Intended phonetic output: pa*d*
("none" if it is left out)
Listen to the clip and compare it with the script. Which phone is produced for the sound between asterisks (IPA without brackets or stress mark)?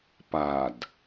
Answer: d